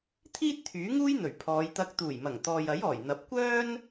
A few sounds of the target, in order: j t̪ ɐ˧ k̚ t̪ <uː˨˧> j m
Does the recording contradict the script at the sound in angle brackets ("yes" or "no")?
yes